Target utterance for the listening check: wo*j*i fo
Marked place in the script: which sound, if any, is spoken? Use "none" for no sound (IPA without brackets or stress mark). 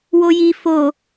j